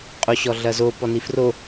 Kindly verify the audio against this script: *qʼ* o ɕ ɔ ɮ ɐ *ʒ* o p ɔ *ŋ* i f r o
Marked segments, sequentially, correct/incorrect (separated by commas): correct, incorrect, incorrect